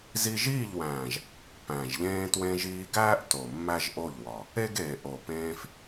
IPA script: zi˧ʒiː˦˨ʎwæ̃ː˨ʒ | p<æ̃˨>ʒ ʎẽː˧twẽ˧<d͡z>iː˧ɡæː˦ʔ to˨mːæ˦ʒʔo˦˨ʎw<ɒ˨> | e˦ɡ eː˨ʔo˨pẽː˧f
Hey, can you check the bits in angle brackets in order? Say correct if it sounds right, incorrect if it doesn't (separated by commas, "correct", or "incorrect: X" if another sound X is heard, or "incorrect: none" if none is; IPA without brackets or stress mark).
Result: correct, incorrect: ʒ, correct